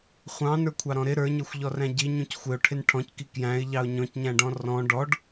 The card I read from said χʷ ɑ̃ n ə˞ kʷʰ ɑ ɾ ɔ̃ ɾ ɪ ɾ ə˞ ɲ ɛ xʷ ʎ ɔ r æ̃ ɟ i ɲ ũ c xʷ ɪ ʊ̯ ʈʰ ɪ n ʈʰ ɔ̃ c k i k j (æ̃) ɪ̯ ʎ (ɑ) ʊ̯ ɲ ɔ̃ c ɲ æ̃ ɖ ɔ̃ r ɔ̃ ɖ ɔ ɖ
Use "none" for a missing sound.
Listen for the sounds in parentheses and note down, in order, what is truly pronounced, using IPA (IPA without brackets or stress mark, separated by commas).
æ̃, ɑ